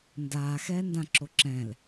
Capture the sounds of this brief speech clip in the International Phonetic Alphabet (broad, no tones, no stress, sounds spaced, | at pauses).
n d aː x ɛː n d ã ǁ o ǁ ɛ̃ l